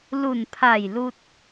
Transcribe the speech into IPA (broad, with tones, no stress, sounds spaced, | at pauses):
l u˧˩ n pʰ a˧˩ j l u˧ t̚